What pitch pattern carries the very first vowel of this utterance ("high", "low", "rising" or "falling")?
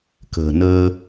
low